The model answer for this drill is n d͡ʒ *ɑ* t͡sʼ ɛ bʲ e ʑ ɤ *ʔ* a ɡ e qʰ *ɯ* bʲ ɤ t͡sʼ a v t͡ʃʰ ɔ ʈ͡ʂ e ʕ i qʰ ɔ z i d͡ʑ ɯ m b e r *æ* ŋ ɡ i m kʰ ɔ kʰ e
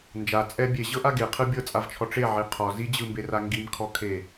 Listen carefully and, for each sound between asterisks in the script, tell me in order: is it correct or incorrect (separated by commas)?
incorrect, correct, correct, incorrect